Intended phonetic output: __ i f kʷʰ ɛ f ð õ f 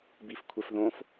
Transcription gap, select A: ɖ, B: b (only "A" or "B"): B